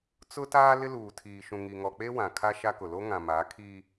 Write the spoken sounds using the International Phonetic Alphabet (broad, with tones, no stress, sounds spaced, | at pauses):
t͡s ʊ˦ t aː˦ l ɪ˦ l uː˨ tʰ iː˨ ʃ ũ˨ ŋ i˨ ŋ ɔ˨ k͡p e˦ w ã˨ kʰ a˦ ʃ a˦ k ʊ˨ l o˦ ŋ ã˨ m a˨˦ kʰ i˦